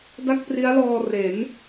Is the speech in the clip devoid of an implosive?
yes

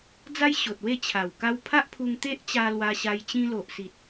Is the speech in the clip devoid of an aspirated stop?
no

